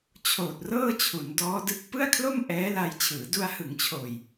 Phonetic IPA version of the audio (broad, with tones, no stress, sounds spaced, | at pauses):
t͡ɕʰ oː˨˩ t̚ r ɤː˥˩ t͡ɕʰ u˩˦ n d ɔː˦˥ d ɯ˦˥ k̚ p ɯ˥˩ a̯ kʰ l o˥˩ m ʔ ɛː˦˥ l a˧ j t͡ɕʰ ɯː˩˦ d u˧ a̯ h ɯ˩˦ ŋ t͡ɕʰ oː˨˩ j